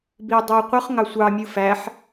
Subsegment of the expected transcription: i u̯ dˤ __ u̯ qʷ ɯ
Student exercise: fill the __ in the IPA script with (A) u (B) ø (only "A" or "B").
B